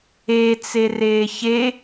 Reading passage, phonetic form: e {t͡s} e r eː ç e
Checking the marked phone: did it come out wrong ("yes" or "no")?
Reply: no